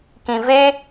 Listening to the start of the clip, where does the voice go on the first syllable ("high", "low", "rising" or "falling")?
low